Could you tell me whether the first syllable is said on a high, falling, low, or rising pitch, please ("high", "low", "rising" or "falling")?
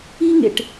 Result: high